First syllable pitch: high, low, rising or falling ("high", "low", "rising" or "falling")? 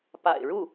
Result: low